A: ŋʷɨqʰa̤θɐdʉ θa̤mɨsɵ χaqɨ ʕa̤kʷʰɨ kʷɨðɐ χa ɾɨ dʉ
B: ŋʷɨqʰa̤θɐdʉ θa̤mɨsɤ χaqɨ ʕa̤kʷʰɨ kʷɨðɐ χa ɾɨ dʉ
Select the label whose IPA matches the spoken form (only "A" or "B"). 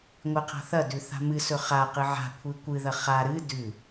A